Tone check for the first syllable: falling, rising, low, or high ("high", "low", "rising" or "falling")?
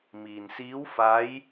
low